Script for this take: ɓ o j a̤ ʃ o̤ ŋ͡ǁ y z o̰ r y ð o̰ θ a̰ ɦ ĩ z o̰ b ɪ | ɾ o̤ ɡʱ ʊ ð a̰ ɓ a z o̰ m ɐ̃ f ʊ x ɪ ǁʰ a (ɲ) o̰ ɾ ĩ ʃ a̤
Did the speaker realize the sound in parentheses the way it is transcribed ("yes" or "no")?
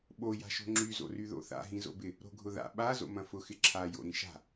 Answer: no